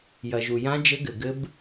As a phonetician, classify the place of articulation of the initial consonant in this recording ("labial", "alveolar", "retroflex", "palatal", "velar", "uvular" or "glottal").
palatal